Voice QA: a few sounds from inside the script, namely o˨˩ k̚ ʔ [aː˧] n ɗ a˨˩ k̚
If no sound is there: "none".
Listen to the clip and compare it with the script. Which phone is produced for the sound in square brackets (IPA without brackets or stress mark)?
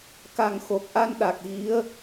a˧